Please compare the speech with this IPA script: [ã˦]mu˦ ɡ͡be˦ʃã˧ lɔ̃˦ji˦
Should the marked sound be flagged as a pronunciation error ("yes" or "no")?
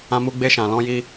no